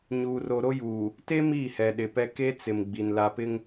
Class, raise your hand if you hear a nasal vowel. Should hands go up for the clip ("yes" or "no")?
no